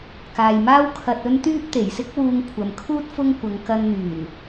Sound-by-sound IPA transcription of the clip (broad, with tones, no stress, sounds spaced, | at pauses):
k aː˨ j m aː˥ w kʰ ɐ˧ t̚ ɵ˥ n t̪ yː˥ p̚ t̪ e˨˩ j s ɪ˥ k̚ w uː˧ ŋ kʷʰ ɐ˨ m kʰ uː˥ t̚ f ʊ˥ ŋ kʷ ɐ˨˧ ŋ k ɐ˧ n n̪ yː˨˩ n